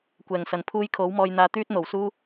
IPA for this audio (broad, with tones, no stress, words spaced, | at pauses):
kʷɛː˨˩ŋsɐ˨˩npʰuː˧j kʰo˨˥wmɔː˧jn̪aː˧ t̪yː˥t̚n̪o˨˩wsuː˥